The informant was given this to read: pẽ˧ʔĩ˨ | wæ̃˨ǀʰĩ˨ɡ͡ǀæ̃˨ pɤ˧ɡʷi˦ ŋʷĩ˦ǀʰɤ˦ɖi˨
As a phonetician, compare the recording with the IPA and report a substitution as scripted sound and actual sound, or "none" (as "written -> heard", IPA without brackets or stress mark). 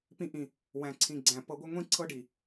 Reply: ẽ˧ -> ĩ˧